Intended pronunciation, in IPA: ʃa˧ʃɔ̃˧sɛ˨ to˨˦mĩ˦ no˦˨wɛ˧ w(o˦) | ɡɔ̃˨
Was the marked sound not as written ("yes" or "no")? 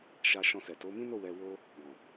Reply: no